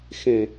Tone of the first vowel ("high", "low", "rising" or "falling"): low